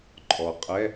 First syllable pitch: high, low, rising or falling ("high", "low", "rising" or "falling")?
low